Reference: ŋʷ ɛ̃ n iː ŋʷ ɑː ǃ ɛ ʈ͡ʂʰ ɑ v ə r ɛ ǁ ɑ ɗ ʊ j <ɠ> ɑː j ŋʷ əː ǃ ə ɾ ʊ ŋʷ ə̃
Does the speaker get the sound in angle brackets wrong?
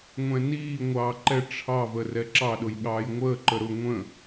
no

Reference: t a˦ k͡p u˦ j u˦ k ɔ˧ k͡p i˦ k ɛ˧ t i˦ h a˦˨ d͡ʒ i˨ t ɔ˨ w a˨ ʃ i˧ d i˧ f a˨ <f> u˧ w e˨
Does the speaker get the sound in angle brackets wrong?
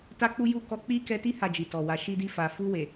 no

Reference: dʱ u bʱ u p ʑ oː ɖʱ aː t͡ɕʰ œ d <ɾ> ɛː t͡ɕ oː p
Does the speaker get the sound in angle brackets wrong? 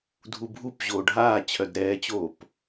no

